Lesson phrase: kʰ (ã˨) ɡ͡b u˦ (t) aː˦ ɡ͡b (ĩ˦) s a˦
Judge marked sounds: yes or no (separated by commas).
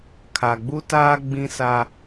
no, yes, yes